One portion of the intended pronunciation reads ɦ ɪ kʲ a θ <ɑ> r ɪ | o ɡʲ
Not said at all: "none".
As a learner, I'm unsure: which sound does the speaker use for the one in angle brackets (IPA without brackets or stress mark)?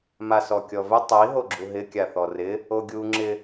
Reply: ɔ